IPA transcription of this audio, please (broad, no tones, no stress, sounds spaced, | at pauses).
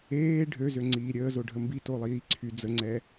eː ɖʱ ø z ø ŋ͡ǀ iː ɾʲ əː z o ɖʱ ə m b i t o lˠ iː ǀʰ y d͡z ə ŋ͡ǀ ɛ